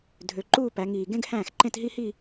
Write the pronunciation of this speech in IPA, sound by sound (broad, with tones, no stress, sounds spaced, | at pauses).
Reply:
dʱ ø˩˧ ǃ uː˥˧ p æ˩˧ ŋ iː˨˩ ɡ ẽ˥ ɡ h æ̃ː˥˩ x ǃ ẽ˥˧ t ɦ i˥ h i˥˧